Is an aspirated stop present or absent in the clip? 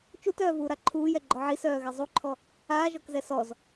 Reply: present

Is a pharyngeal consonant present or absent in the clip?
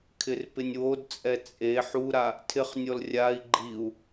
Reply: present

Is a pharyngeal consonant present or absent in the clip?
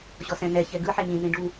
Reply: present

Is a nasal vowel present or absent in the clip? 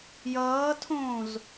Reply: present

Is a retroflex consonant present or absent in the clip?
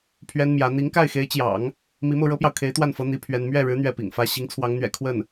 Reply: present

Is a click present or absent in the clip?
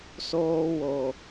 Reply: absent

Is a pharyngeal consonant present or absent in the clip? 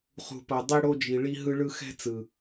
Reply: absent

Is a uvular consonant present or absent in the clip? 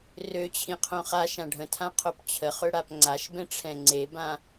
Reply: present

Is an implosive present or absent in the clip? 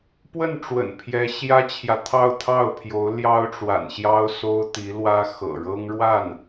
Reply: absent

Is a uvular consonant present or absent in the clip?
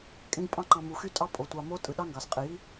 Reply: present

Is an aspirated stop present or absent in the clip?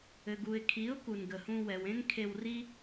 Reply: present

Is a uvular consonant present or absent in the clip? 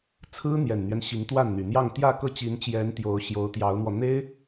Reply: absent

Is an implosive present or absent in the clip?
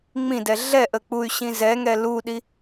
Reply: present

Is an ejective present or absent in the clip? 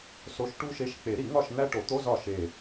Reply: absent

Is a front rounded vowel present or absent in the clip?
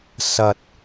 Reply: absent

